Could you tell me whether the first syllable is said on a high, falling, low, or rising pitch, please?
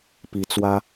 rising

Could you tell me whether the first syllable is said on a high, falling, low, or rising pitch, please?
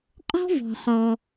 high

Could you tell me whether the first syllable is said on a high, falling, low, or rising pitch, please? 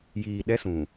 low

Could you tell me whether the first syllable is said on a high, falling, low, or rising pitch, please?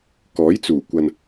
rising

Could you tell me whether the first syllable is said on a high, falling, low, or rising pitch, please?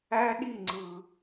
high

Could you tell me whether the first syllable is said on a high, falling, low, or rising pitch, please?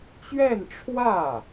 falling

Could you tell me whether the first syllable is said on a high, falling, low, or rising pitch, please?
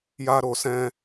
high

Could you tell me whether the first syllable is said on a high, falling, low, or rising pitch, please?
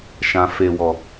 low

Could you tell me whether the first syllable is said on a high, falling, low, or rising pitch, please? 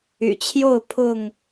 low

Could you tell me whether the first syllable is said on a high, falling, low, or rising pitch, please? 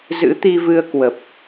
rising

